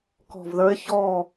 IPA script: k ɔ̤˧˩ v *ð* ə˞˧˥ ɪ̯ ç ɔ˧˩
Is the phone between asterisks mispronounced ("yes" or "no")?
no